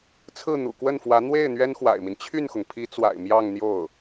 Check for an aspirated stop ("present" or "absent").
present